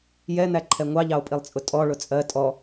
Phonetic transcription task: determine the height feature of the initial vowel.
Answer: mid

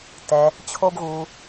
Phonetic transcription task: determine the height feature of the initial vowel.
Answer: mid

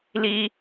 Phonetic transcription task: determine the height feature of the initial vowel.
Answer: high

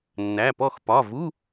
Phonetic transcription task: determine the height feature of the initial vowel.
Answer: low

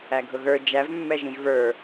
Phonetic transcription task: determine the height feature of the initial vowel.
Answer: low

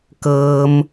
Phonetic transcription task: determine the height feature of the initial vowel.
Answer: mid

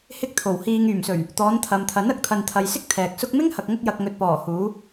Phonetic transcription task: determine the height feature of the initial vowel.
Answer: high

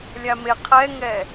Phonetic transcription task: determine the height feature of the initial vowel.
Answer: low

